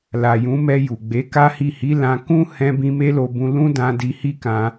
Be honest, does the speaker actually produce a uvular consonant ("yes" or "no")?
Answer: no